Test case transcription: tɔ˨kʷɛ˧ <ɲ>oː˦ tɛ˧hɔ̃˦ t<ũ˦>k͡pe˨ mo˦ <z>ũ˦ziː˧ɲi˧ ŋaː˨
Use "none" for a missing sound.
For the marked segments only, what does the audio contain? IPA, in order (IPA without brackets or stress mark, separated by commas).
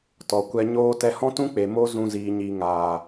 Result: ɲ, ũ˦, z